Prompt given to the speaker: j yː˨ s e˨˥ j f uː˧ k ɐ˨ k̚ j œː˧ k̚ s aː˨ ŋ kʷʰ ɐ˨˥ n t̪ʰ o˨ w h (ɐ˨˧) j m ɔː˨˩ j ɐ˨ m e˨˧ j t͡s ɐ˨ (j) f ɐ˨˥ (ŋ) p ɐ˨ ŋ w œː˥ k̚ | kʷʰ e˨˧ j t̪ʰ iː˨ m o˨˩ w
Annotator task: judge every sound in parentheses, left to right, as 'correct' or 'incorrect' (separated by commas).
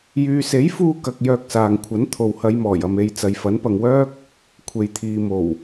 correct, correct, incorrect